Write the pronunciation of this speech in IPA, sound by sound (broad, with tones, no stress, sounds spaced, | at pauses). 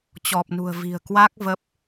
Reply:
t͡ɕ ɔ˨˩ p̚ n ṳ˨˩ ə̯ v i̤˨˩ ə̯ k w a˦˥ k̚ v ə˦˥ p̚